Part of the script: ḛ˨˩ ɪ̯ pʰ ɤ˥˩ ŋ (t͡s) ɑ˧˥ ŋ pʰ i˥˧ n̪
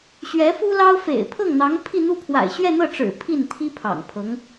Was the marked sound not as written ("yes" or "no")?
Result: yes